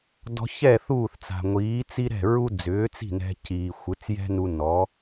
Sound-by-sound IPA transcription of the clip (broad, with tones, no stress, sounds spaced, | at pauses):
d ɔ̤˧ ç ɛ˥˩ θ uː˥˩ θ t͡s a̤˩ ŋʷ iː˩˥ t͡s i˥ ɾ ɛ̤˥˩ ɹ u˥ d͡z ʏː˩˥ t͡s i̤˥˩ n ɛ̤˧ c iː˩ xʷ ɯ˩˥ t͡s j ɛ̤˥ n u˧ n ɔ˩˥